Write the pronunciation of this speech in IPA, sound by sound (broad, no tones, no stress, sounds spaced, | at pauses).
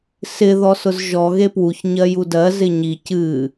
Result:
s ɪ ð ɔ s ʊ z ʒ ɔ ɣ e p w u ç ɲ ɜ j u d ɜ z ɪ ɲ i c ɨ